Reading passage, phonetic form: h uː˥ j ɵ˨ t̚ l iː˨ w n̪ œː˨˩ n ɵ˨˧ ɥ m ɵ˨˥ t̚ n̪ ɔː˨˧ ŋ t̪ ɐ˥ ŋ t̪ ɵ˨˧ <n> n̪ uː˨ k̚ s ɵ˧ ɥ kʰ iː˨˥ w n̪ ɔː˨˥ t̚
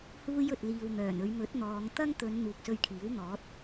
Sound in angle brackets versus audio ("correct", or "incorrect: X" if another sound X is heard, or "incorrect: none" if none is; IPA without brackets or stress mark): correct